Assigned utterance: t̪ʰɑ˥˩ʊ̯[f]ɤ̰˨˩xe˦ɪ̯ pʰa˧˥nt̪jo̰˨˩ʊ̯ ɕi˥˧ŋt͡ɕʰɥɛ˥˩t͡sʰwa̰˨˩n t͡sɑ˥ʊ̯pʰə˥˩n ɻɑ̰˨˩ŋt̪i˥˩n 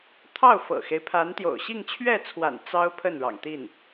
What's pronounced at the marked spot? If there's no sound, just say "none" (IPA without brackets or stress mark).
f